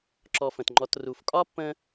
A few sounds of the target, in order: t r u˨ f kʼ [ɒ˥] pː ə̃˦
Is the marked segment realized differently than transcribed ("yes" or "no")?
no